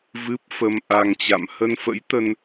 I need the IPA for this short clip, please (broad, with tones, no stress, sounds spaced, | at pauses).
v ɨ˦˥ p̚ f ə˧ m ʔ a˧ ŋ t͡ɕ a̰˧˨ m h ə˧ n f ə̰˧˥ j t̪ ə˧ n